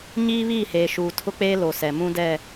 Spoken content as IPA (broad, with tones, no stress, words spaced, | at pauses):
ɲiː˦βiː˦˨heː˨ ʃuː˨tʰʊ˦k͡peː˦ lo˨ sɛ˨ mũ˦ dɛ˦˨